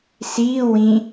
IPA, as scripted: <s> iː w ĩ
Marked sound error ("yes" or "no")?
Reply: no